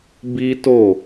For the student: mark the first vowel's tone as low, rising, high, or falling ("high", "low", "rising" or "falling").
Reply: high